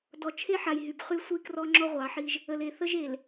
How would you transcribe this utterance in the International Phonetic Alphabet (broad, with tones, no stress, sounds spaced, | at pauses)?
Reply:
d ɔ˨ t͡ʃʰ e˦ ħ a˨ j ɦ y˨ b χ y˦ sʷ i˦ k r ɔ˦ ŋ͡ǁ ɔ˦ ʁʷ ɑ˨˦ ħ i˦ ʒ | ə˨ l e˨ θ ə˦ ʒ e˨ l